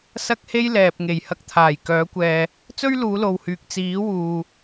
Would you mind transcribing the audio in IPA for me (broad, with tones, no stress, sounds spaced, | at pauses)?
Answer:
s ɐ˥ k̚ h e˥ j l ɛː˨ p̚ ŋ e˨˩ j h ɐ˧ k̚ t̪ʰ aː˨˩ j k œː˨˥ kʷ ɛː˨ | t͡s ɵ˥ ɥ l uː˨˧ l o˨ w h yː˨ k̚ t͡s iː˨˥ w uː˨